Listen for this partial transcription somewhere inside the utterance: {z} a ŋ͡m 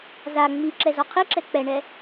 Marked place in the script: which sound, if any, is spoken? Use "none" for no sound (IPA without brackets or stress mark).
z